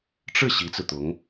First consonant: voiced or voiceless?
voiceless